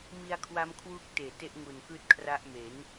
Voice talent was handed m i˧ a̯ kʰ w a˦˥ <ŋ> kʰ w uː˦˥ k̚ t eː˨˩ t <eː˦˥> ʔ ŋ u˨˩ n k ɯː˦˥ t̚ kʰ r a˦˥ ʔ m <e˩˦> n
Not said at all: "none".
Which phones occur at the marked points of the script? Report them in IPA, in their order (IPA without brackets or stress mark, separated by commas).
m, e˦˥, e˩˦